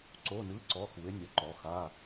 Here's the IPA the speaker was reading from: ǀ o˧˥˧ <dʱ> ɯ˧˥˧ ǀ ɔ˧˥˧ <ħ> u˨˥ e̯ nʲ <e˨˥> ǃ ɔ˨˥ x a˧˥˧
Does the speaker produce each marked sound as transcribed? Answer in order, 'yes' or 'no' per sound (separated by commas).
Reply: no, no, no